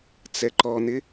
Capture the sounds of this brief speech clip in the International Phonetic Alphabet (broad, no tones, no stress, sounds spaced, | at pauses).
t͡s ɛ ǃ ɔ n̪ ɪ